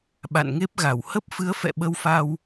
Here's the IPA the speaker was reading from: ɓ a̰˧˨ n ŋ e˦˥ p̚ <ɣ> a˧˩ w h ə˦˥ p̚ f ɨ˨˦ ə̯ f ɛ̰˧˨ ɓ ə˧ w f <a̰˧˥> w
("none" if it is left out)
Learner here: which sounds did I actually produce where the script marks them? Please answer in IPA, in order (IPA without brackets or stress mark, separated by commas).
ɣ, a˧